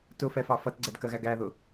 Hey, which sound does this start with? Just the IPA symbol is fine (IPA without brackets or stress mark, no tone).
t